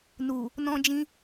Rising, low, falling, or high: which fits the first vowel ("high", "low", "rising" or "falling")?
low